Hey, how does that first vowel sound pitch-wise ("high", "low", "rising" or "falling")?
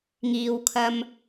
low